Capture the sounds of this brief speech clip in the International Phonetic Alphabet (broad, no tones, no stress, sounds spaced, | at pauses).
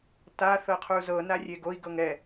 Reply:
t a θ ɤ qʰ u z ɤ n a rʲ e ɡ o i̯ ɡ ɤ ŋ ɛ